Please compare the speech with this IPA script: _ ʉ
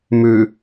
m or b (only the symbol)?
m